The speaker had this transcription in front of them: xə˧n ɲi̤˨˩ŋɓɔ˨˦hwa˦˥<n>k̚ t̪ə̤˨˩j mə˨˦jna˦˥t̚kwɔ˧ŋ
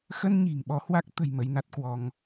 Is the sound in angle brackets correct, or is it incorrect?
incorrect: none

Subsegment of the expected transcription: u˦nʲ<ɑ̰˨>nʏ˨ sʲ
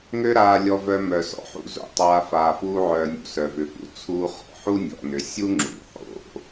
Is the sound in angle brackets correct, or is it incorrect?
incorrect: ɔ̰˨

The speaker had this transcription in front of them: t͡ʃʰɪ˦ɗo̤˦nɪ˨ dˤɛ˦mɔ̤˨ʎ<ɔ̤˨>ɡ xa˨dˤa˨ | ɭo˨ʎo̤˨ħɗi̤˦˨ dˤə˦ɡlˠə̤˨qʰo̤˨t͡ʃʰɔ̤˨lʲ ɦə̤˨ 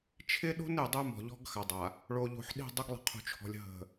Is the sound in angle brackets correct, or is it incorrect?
incorrect: ɔ̤˦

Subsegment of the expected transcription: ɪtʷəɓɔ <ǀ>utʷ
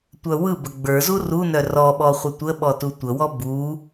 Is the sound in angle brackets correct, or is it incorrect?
incorrect: t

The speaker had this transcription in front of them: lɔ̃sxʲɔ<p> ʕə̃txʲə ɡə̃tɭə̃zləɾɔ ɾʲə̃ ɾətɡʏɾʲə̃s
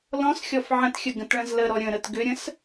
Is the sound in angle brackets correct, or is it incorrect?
incorrect: f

